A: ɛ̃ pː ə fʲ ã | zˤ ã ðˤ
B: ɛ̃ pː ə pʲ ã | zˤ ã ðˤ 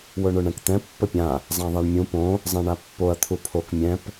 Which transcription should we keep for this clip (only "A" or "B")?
B